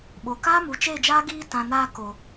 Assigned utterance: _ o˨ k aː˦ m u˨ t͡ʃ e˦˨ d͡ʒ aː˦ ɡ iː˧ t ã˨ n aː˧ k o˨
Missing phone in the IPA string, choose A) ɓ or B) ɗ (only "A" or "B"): A